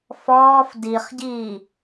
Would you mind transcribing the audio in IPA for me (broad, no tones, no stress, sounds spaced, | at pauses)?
f ɔː f d i χ ɟ iː